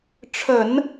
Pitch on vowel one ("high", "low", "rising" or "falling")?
low